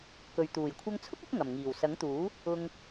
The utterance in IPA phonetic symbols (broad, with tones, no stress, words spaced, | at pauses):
kɵ˨ɥ t̪uː˨˩jkʷʰɐ˧ŋt͡sʰʊ˥k̚ɪ˨˥k̚ ŋɐ˨˩mŋiː˨˩wsɐ˨˥ŋt̪uː˨˥ | ʊ˧ŋ